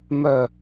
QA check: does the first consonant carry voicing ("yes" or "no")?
yes